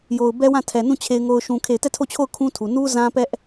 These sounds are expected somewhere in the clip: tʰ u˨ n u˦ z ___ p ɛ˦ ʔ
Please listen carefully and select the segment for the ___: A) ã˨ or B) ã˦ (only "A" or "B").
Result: B